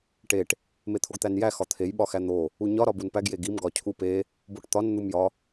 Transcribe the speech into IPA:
ʈ e ʈ | m e t̪ʰ o ɡ t̪ æ n j æ x ɒ t̪ʰ e j ɓ ɒ x æ n̪ o | u ɲ ɒ ɾ ɒ b u n p æ ɡ j e ɡ i m ɡ ɒ cʰ u p e | b o ʈ t̪ ɒ n n̪ u m j ɒ

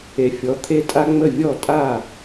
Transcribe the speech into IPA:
e˩˥ fʲ ɔ˩˥ t̪ʰ e˥ tʼ a˥ ŋ͡m ə˥˩ vʲ ɔ˥˩ tʼ a˥˩

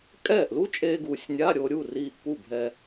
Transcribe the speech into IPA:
kʼ ɛː˥˩ ʔ l u˦˥ t͡ʃʼ eː˧ ɡ uː˨˩ sʲ nʲ a˧˥˧ ɾʲ o˧ ɾʲ u˥˩ r iː˧ ʔ p u˥˩ bʱ ɛ˧

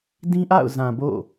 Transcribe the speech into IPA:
d ĩ˦ ʔ a̰˦˨ ʊ̯ z ã˨ b o̰˦˨

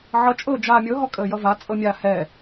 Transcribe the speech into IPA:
ʕ ʌ t͡ʃʼ ɤː d͡ʒ aː mʲ ɤ ɦ ɔ kʼ əː j ʌ v a t͡sʼ ɤ mʲ a h ɛ

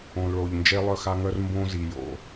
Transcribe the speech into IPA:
õ˩ l ɭ o˩ ʎ n d͡ʒ e˧ lˠ œ˧ x a˧ ŋ œ˧ r m b õ˧ z i˩ j o̰˩

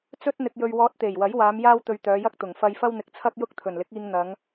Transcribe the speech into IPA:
t͡s ɵ˥ t̚ n̪ ɪ˧ k̚ j ɵ˧ ɥ w ɔː˧ t̚ t̪ e˨˩ j w ɐ˨˥ j w aː˨˧ m j aː˥ w t̪ ɵ˧ ɥ t̪ œː˨˧ j ɐ˥ k̚ t̪ ʊ˨˩ ŋ f ɐ˧ j f ɐ˥ w n̪ ɪ˨˥ k̚ t͡sʰ ɐ˥ k̚ j ʊ˥ k̚ t̪ʰ ɵ˨˩ n l ɪ˨˥ k̚ iː˧ ŋ n̪ ɐ˨˧ ŋ

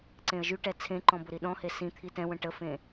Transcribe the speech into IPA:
ǀ ẽ ə̯ ʒ y ʈ ɛ t͡sʰ ẽ ǃ ɔ̃ b ʊ ɾ i ɗ ɔ̃ h e s ĩ t̪ʰ i t ɛ̃ w ə̃ ʈ ə f ẽ

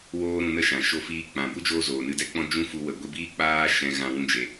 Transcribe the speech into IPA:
w oː˦ ɾ ũ˧ n ə˦ ʃ ã˨ ʃ o˧ f iː˧ k͡p ã˨ b u˦ d͡ʒ oː˧ z oː˨ n ɨ˧ d ɛ˦ k͡p ɔ̃˦ d͡ʒ ũ˦ f u˧ w ə˨ ɡʷ i˧ b iː˦ k͡p aː˧ ʃ ɛ̃˨ ɣ ã˧ w ũ˧ d͡ʒ e˨

